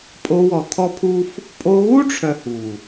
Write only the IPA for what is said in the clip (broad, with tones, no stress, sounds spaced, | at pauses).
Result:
pʼ o˧ w ɔ˨ t̪ʰ ɔ˦ pʰ u˦ f | pʼ o˧ ɣ u˦ ʈ͡ʂʰ œ˨ h u˨